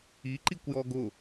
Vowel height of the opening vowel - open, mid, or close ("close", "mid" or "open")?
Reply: close